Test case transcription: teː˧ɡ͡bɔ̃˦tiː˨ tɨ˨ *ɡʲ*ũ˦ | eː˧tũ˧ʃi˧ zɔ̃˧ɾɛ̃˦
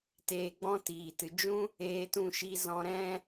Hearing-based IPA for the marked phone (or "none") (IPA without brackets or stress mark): d͡ʒ